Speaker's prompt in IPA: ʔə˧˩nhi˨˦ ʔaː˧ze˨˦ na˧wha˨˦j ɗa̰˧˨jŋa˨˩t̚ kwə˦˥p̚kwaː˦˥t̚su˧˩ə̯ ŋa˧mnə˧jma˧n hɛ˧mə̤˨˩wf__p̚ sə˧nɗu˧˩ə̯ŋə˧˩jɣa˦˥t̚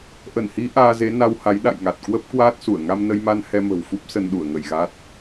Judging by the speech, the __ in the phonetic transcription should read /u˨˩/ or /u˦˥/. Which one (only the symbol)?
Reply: u˦˥